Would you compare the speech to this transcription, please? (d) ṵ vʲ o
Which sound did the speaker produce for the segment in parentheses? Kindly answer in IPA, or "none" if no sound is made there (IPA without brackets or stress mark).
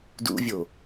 d